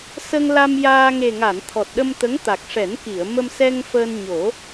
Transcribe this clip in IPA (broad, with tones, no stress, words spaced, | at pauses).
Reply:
sə˧ŋla˧mjaː˧ ŋe˨˩ŋa˨˩˨n t̪ʰɔ˨˩t̚ɗə˧mt̪ə˧˥ŋ t̪a˨˩k̚ʂɛ˨˩˦nki˨˩˨ə̯ mə˧msɛ˧ŋfəː˧n ɲo˨˩˦